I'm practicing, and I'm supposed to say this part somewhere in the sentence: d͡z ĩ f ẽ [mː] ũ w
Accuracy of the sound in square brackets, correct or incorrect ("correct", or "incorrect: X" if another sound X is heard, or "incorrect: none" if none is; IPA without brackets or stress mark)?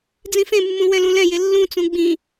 correct